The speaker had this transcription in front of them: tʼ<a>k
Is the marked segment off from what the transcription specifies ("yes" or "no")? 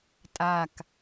no